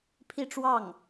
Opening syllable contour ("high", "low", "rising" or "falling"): falling